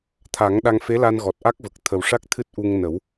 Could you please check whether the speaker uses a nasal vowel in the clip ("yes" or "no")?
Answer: no